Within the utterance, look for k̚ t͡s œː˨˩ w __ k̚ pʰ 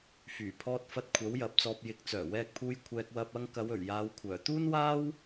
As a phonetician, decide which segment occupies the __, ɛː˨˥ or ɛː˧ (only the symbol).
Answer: ɛː˧